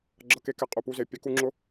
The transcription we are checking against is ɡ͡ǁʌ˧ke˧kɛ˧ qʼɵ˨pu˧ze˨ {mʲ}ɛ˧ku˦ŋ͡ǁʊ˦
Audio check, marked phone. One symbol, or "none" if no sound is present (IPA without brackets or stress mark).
pʲ